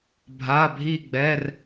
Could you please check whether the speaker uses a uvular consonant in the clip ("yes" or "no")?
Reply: no